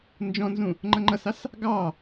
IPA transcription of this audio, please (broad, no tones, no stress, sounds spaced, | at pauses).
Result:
n d͡ʒ ɔ̃ n z ũ | ŋ͡ǃ ʌ ŋ͡ǃ ʌ s ɑ s | ɡ ɑ